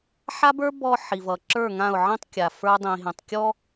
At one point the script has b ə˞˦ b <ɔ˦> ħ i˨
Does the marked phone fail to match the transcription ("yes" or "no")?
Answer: no